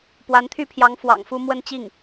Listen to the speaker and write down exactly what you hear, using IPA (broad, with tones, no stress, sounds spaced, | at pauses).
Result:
p w a˧˥ n t̪ʰ y˥˩ pʰ j ɑ˧˥ ŋ f w ɑ̰˨˩ ŋ f u˥˧ m w ə˥˧ n t͡ɕ i˥˩ ŋ